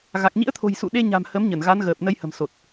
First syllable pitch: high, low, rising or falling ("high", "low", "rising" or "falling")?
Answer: low